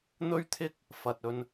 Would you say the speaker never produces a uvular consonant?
yes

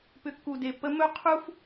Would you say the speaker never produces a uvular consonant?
no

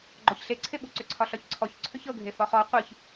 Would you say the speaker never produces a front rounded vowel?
no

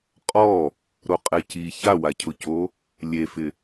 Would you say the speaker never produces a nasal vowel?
yes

